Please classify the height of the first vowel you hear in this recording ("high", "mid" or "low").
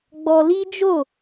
mid